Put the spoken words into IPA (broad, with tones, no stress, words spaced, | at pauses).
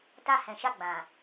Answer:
ta˧hɛ̃˨ʃa˧ɡ͡bã˨